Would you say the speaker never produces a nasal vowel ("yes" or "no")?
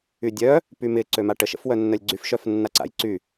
yes